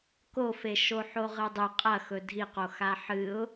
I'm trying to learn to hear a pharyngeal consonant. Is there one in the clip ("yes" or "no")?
yes